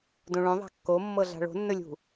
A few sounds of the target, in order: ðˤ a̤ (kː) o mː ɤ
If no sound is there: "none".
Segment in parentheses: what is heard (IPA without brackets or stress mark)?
kː